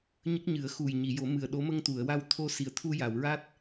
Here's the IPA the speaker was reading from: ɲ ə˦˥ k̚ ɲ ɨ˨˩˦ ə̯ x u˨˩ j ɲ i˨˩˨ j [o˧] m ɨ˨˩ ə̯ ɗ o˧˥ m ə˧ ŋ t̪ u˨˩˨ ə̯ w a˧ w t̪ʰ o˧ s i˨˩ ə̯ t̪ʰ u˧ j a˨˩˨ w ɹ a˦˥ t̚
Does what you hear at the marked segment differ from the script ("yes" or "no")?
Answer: yes